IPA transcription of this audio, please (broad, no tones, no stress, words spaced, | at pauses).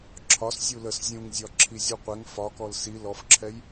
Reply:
ǁʰɒs zʲuləs zʲũŋzʲɒ ǁʰizʲuqʷɛŋ fɒkɔl si lɔfǁʰɛj